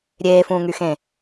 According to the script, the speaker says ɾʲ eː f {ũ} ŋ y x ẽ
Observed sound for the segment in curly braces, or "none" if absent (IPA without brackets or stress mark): ũː